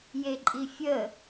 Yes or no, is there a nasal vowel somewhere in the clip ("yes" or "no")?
no